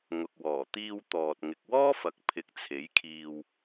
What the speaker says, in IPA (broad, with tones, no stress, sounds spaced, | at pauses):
ŋ ʊ˨ k̚ w ɔː˨˩ t̪ iː˧ w t̪ ɔː˨ t̚ ŋ ɪ˨ k̚ w ɔː˥ f ɐ˨ k̚ pʰ ɪ˨˥ k̚ t͡sʰ e˨˥ j kʰ iː˧ w